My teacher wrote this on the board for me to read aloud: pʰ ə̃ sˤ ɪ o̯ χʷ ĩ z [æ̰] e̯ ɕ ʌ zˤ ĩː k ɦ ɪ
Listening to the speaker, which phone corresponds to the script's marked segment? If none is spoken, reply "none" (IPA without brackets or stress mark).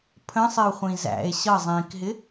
æ̰